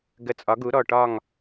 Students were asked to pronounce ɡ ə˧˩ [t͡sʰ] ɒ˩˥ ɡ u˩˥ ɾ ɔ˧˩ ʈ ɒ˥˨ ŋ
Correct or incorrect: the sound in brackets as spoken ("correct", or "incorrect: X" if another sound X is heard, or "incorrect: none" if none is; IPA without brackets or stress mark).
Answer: incorrect: t͡sʼ